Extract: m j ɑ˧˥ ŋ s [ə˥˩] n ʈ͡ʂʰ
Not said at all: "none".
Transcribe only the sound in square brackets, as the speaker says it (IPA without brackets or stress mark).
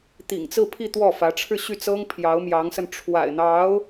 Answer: ə˧